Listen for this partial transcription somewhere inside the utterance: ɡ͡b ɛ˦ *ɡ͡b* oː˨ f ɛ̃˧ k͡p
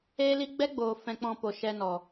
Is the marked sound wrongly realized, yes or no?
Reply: no